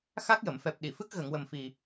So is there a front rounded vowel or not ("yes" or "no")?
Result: no